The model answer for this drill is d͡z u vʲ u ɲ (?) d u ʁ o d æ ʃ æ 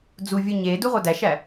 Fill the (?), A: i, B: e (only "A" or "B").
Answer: B